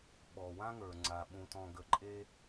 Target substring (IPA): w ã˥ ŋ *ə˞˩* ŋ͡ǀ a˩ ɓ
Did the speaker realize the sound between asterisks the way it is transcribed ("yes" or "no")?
yes